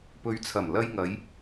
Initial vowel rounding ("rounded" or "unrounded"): rounded